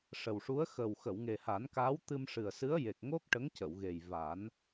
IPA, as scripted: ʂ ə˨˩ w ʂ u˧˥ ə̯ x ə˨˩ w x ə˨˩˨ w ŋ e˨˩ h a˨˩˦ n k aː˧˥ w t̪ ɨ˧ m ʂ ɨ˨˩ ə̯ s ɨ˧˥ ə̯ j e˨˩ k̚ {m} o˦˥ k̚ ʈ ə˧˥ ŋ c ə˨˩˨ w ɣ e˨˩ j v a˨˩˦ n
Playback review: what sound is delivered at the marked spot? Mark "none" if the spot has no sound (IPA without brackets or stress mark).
ŋ